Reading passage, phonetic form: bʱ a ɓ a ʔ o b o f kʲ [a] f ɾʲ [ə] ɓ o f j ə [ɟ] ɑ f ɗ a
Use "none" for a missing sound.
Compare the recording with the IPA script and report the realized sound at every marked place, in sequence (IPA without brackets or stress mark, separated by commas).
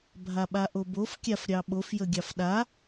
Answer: a, ɑ, ɡʲ